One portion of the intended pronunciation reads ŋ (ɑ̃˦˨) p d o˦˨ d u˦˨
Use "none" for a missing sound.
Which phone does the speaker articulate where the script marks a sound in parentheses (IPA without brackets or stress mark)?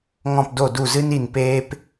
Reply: ɔ̃˦˨